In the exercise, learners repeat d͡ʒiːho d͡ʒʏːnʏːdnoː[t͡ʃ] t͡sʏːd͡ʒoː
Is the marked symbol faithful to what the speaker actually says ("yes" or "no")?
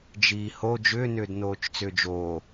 yes